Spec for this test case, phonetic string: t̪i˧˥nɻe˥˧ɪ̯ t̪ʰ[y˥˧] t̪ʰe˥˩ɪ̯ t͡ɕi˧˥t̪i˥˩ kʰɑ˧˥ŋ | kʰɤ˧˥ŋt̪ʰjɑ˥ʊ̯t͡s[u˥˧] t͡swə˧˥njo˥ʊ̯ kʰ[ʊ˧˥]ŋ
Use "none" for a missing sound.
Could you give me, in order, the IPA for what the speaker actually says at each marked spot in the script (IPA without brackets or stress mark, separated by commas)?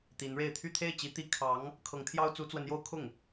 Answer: y˥˧, u˧˥, ʊ˥˩